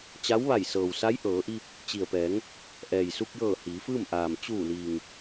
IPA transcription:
t͡ɕ a˧˥ w ʋ a˧˩ j s ɤː˩ w s a˧˥ j ʔ ɤː˩˧ ʔ i˧ p̚ | t͡ɕ i˩ ə̯ p ɛː˩˧ ŋ | ʔ ɛː˩ j s u˧ k̚ j ɤː˧˩ h iː˩˧ f ɯː˥˨ m ʔ aː˩ m t͡ɕ uː˧˩ l iː˩ ŋ

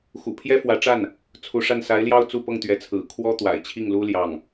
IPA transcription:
x ṵ˨˩ pʰ j ɛ˥ f w ä˧˥ ʈ͡ʂ a˥˩ n | t͡sʰ u˧˥ ʂ a˥˩ n s a˧˥ ɪ̯ l j ɑ˥˧ ʊ̯ t͡s u˥˧ p ɤ˥˩ ŋ t̪ ɥ ɛ˧˥ t͡sʰ ɹ̩˨˩ kʰ w ɔ˥ t̪ w a̰˨˩ ɪ̯ t͡ɕʰ i˥˩ ŋ l u˥ l j ɑ˥˩ ŋ

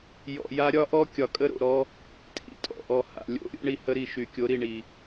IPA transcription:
j ɔ̰˨ j a˦ ɾʲ ɒ˦ ʔ ɔ˦ kʲ ɒ˨ kʼ ə˦ ɾ o̰˨ ɾ ɔ˦ | tʼ ḭ˨ tʼ ɔ̰˨ ʔ ɔ˨ h a̰˨ lʲ o̰˦˨ ɾʲ o̰˦ ɳ i˨ h ə˦ ɾ i˨ ʃ y˨ kʲ o˨˦ ɾ i˨ ɳ i˨

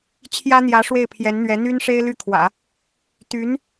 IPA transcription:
t͡ɕʰ j ä˥ n̪ j ä˧˥ ʂ w e˥˩ ɪ̯ pʰ j ɛ˧˥ n n̪ ɥ ɛ˧˥ n̪ y˥ n ʂ e˥ ɪ̯ l y˥˩ kʰ w ä̰˨˩˦ | t̪ y˧˥ n

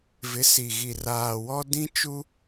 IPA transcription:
v ɪ˨˦ s i˨ ɣ i˨ r aː˨ w ɔ˦ d ĩ˦ t͡ʃ u˦

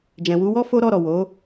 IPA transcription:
d͡ʒ ɛ̃˨ w u˧ w ɔ˦ f o˦ ɾ ɔ˦˨ ɾ ɔ˨ w o˨˦

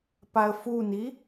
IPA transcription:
p a ə̯ f u n i

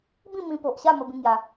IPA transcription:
b ĩ˥˧ m ĩ˧ p o˨ ʔ ɕ a˥˧ m ə˦ b ĩ˦ ŋ j a˧

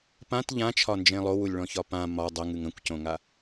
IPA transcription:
p ã t ʎ ã t͡ʃʰ ɒ n d͡ʒ ẽ lˠ o w u lʲ ɭ ɔ̃ ç ɒ p ã m ɒ dˤ ə ŋ ɨ ŋ ə̃ kʷ c õ ŋ a

